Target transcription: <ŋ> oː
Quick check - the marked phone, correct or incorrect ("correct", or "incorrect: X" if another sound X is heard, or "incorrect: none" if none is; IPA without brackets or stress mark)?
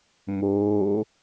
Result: incorrect: m